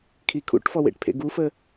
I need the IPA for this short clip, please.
kʰ i kʰ ṵ ʈ f ɔ w ḛ ʈ pʰ ḛ ɡ u f ə

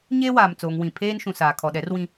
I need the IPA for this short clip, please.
ɲ eː˦ w aː˨ m t͡s oː˨ ŋ w ĩ˨ pʰ eː˦ n ʃ ũ˨ s aː˨ kʰ ɔ˨ ɗ ɛ˨˦ r w ĩ˦

